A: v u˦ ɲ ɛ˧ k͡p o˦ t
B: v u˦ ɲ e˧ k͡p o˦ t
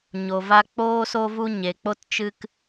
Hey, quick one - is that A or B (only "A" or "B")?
B